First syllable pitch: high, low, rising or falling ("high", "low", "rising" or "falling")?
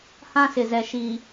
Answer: high